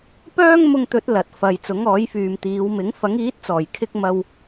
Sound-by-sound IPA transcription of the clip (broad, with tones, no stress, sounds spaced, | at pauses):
p œː˥ ŋ m ʊ˧ ŋ t̪ ɵ˨˥ t̚ l ɐ˨ t̚ f ɐ˨ j t͡s ʊ˨˥ ŋ ɔː˨˥ j f yː˨ m t̪ iː˨˧ w m ɪ˨˥ ŋ f ɐ˨˥ ŋ iː˨˥ t̚ t͡s ɔː˨˩ j kʰ ɪ˧ k̚ m ɐ˧ w